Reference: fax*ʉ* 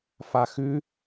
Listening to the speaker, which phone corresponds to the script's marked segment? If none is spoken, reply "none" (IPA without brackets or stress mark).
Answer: ʉ